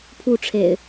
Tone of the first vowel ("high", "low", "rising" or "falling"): falling